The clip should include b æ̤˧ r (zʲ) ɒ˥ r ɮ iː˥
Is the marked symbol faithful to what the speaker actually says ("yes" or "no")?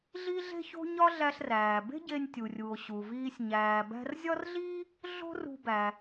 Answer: yes